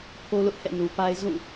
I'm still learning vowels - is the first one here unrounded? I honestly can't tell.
no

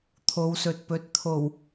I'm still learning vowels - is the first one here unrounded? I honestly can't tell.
no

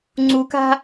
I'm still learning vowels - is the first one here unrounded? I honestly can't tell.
no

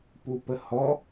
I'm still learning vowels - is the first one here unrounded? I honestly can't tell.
no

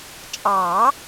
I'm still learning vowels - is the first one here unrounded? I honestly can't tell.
yes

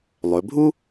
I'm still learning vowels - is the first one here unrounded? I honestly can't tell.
no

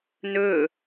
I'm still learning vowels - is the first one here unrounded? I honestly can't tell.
no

